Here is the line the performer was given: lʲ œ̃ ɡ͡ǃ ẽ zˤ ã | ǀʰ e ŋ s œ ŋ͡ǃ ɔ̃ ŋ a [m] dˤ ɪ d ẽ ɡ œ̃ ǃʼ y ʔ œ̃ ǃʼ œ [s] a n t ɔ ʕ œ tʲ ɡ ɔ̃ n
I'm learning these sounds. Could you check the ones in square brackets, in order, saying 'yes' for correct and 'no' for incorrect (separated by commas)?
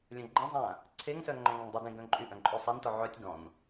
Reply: no, no